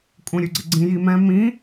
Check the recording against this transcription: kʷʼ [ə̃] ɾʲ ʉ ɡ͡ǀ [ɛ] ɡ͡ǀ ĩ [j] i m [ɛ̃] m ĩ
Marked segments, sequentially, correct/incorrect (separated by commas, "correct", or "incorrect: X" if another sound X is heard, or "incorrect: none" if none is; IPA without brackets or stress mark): correct, incorrect: ɪ, correct, correct